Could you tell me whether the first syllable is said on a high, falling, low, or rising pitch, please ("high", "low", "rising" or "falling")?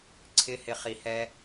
high